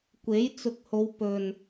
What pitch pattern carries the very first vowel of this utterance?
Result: rising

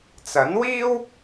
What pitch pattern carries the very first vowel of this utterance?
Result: rising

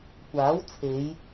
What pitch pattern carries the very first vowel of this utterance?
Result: rising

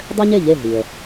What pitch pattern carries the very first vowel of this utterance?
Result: high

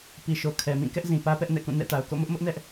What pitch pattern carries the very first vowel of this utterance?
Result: low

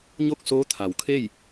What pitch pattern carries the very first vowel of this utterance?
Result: falling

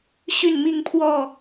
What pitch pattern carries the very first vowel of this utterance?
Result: falling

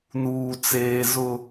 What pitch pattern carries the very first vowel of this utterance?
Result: low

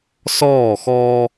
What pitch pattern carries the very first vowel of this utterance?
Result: falling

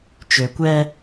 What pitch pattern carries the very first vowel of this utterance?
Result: low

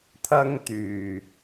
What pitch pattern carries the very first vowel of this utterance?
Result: high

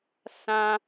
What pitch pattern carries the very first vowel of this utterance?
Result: high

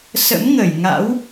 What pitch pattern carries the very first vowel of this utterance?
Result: rising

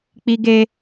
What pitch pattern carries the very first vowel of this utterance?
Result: high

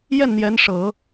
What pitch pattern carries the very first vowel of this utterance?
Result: falling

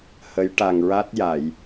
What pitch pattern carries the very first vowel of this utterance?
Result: rising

